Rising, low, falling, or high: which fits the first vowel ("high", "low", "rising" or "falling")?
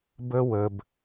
high